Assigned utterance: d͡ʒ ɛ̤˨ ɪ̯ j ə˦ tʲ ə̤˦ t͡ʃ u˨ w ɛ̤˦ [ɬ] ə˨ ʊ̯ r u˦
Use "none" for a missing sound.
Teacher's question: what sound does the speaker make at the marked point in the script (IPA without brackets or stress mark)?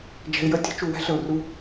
ɬ